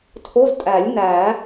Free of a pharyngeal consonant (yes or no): yes